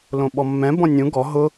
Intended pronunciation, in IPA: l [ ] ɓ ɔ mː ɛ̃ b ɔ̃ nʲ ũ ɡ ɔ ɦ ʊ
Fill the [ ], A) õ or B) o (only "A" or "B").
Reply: A